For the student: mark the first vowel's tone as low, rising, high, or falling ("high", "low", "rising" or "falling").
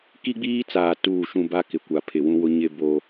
high